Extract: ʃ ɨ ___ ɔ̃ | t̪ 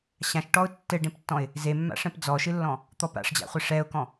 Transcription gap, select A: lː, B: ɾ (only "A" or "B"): A